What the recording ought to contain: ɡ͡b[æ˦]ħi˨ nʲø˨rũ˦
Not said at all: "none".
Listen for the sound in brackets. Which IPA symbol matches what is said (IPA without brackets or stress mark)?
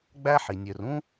æ˦